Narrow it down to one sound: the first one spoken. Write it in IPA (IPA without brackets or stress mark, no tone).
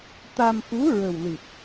t̪